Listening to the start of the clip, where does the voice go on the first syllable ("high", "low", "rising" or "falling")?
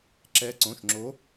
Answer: rising